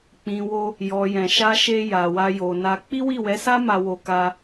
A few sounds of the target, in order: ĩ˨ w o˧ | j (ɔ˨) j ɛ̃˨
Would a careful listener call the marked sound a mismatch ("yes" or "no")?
no